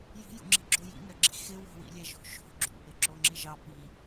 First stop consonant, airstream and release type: click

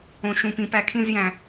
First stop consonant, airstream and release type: plain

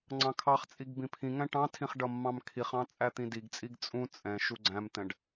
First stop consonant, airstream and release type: click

